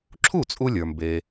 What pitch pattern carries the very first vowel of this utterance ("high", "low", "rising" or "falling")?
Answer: falling